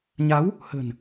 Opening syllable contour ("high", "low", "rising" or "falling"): rising